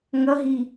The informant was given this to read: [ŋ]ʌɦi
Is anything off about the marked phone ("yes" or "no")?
no